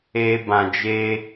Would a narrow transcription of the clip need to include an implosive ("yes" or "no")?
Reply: no